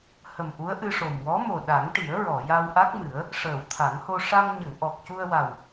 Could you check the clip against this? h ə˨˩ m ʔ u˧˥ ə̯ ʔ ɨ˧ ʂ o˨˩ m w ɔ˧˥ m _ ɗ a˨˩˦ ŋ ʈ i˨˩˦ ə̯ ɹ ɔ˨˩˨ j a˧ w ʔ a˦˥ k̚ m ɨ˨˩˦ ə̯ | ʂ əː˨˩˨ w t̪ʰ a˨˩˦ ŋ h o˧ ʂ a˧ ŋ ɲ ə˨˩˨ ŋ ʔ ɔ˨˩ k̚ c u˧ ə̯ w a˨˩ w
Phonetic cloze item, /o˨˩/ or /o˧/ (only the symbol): o˨˩